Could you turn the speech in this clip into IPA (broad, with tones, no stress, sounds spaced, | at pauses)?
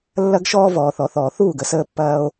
lː ɐ˦ ɡ ʃ ɔː˦ v ɔː˨ θ ɔ˨ θ ɔː˨ θ uː˦˨ ɡ ə˦ s əː˦ pː ɐː˦ o̯